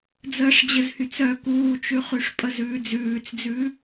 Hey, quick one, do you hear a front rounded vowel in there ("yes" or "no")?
yes